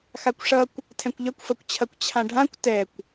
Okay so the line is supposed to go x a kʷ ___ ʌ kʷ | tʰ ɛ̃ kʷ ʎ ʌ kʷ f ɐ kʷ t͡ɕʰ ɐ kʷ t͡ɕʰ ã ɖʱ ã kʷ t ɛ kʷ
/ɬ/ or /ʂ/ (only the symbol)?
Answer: ʂ